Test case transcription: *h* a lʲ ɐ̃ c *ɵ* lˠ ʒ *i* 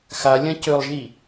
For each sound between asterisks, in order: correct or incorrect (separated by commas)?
incorrect, correct, correct